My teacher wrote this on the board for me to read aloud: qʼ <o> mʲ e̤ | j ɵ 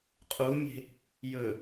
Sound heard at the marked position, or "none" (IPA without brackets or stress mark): u